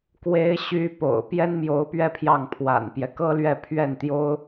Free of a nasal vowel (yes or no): yes